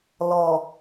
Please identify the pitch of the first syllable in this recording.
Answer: low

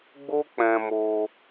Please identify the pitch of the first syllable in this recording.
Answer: high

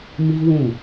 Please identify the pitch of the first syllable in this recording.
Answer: high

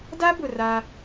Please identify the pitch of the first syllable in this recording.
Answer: high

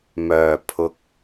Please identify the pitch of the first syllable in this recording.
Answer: low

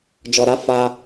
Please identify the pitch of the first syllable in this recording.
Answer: low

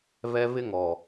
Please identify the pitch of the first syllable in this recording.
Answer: high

